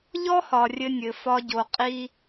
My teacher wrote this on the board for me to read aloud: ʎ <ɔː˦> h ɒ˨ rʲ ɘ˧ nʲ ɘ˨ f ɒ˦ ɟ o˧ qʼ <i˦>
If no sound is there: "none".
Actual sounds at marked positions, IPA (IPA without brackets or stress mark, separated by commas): ɔ˦, i˦